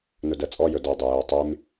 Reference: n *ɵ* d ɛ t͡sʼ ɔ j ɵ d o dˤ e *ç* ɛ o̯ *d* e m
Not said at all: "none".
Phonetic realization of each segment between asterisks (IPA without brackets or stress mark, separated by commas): ɵ, j, tˤ